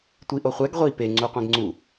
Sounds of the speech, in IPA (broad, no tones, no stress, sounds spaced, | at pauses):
tʷ i ʔ o χʷ ɛ ɡ ʁʷ i p e ŋ͡ǀ u qʷ ẽ ɡ ŋ͡ǀ u